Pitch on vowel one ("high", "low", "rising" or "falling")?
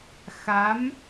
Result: rising